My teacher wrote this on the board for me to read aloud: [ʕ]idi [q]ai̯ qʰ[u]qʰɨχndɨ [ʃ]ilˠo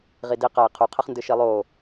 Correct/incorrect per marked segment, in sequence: incorrect: ʁ, correct, correct, correct

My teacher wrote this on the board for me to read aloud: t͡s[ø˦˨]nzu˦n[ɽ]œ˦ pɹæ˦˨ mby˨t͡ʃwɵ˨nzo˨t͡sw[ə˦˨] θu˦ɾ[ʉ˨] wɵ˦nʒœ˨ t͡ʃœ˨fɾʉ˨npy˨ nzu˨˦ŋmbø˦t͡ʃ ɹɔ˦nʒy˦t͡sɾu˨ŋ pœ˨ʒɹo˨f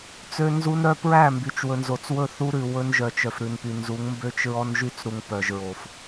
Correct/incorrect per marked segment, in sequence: incorrect: ø˦, incorrect: ɾ, incorrect: ɵ˦˨, correct

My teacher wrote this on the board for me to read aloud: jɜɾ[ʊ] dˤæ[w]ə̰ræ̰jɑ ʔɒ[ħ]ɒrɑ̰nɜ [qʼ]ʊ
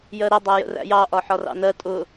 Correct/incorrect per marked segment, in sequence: incorrect: ə, incorrect: j, correct, incorrect: tʼ

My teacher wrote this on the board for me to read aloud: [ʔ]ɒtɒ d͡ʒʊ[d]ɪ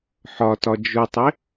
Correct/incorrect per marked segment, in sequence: incorrect: ħ, incorrect: tˤ

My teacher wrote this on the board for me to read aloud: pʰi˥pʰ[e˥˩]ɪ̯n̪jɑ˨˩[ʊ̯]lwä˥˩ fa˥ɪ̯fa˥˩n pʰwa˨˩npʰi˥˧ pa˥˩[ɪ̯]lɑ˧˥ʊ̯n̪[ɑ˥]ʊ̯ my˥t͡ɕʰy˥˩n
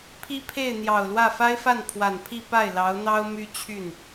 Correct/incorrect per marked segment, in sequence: correct, correct, correct, correct

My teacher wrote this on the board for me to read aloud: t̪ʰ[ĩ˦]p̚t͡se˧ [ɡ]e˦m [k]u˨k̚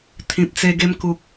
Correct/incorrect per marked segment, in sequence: incorrect: ĩ˨, correct, correct

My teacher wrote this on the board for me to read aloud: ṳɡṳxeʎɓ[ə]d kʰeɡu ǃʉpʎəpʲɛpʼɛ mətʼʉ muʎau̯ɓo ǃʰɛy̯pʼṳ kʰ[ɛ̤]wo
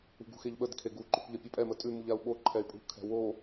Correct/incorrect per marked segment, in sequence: correct, correct

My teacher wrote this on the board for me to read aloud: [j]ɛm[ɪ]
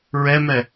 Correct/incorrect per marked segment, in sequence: incorrect: ɹ, incorrect: ɛ

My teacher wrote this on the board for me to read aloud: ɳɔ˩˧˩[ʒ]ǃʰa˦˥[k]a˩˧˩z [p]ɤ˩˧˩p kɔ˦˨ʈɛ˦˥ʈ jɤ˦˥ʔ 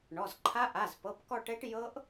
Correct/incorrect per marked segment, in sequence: incorrect: z, incorrect: ʔ, correct

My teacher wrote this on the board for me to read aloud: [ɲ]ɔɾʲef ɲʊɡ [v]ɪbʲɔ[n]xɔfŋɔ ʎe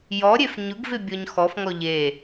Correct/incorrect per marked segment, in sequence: incorrect: j, correct, incorrect: ɲ

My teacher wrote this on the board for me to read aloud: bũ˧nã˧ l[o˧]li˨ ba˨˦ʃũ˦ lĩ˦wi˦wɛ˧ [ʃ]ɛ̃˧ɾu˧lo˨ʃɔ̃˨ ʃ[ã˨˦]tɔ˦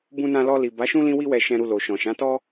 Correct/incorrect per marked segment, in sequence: incorrect: ɔ˧, correct, correct

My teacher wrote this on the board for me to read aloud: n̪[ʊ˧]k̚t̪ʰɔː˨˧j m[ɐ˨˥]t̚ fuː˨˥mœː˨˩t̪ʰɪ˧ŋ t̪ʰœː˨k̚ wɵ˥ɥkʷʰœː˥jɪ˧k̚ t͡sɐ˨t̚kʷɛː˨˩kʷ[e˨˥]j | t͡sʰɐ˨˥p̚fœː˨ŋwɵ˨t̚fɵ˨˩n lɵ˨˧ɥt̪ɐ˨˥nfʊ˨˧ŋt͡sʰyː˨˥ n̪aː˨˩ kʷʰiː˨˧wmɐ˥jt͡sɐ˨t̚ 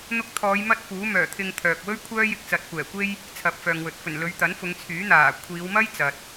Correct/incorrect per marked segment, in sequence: correct, incorrect: ɐ˥, incorrect: e˥

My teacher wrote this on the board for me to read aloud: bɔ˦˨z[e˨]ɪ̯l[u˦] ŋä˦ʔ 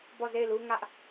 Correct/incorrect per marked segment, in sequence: incorrect: e˦˨, correct

